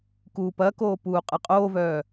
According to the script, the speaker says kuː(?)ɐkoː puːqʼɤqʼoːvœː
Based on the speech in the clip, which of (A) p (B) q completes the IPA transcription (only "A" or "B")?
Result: A